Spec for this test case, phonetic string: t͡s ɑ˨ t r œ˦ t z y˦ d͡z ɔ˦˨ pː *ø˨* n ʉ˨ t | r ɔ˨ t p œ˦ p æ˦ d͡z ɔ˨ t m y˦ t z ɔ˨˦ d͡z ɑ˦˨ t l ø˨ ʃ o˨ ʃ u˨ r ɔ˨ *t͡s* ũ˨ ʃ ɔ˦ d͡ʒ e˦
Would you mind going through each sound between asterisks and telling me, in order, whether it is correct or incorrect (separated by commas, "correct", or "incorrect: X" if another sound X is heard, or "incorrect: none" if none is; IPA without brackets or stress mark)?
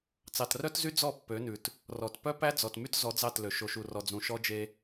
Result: incorrect: ø˨˦, incorrect: d͡z